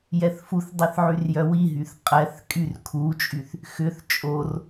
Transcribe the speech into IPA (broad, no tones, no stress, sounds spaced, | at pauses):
j ɛ θ f u θ dˤ i θ ʕ y r j œ w i ɦ y θ qʼ ɛ θ kʼ y r kʰ u t͡ʃʼ y θ | x ʏ θ t͡ʃʼ o r